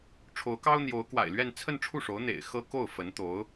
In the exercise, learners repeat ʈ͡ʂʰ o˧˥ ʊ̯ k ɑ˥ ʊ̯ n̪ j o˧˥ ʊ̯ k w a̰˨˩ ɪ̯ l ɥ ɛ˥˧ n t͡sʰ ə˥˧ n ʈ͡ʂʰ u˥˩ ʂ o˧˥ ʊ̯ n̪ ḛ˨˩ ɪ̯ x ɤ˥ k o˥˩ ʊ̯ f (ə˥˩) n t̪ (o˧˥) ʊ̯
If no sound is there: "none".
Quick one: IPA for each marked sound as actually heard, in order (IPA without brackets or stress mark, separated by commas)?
ə˧˥, o˧˥